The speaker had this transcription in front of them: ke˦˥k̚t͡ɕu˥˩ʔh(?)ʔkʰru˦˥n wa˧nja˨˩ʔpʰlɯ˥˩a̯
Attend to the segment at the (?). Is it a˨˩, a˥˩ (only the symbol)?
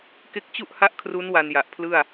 a˥˩